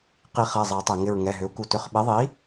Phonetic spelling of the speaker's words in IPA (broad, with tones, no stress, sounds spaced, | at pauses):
q i˨˩˦ χ ɛ˩˧˩ zˤ ɛ˨˩˦ tˤ e˩ ŋ ɪ˧˩ ɹ ŋ ɛ˩˧˩ ɦ ʏ˩˥ u̯ k u˧ t ʏ˩˧˩ χ ɓ e˩˥ ðˤ i˩˥